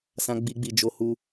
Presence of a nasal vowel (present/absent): present